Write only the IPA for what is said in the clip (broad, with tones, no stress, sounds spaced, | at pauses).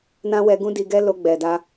n ã˦ w ɛ˧ ɡ ũ˦ d i˧ ɡ ɛ˦ l o˧ ɡ͡b ɛ˨ d a˧